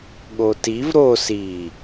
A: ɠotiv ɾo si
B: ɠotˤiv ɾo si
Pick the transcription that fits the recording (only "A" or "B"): A